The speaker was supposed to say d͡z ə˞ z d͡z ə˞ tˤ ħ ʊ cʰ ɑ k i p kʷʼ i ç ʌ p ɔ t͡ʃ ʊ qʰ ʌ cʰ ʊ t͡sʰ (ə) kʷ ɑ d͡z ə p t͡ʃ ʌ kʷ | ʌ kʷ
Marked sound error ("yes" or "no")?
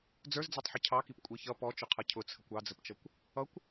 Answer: no